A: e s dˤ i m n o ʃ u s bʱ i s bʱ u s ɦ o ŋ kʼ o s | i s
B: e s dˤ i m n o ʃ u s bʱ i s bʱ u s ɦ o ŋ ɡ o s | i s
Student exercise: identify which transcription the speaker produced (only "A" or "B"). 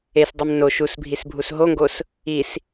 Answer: B